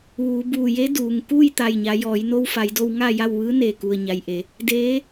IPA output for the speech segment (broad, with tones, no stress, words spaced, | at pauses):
ʋuː˩˧buː˧˩je˧˥ duː˩ŋ kuː˥˨jt̪a˧˩jɲa˩˧ jɔː˩˧jno˧wfa˩˧jdo˧w ŋa˥˨ja˥˨w ʋɯː˧˥neː˧˩ku˩ə̯ ɲa˩jʔe˩˧ | deː˧˥